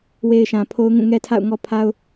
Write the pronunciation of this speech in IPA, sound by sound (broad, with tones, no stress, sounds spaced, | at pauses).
w e˨ ɪ̯ ʃ ã˨ pʰ o˦ ʊ̯ ŋ ũ˦˨ ŋ ɛ˦ tʰ a̰˦˨ ʊ̯ ŋ ɔ˦ pʰ a˦ ʊ̯